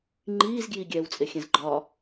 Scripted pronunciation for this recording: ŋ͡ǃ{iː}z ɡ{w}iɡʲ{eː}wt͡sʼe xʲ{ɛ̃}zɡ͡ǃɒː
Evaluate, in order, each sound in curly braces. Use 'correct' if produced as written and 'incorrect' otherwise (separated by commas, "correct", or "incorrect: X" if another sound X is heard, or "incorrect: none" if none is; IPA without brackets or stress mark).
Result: correct, incorrect: j, incorrect: ɛː, correct